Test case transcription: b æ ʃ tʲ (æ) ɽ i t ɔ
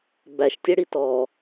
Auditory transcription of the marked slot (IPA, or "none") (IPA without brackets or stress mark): ɛ